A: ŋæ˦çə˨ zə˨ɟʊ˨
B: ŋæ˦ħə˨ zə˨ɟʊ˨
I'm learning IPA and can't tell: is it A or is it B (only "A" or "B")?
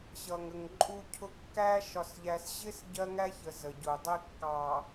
A